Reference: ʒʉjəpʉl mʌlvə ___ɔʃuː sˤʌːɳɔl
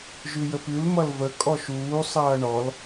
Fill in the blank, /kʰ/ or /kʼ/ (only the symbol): kʼ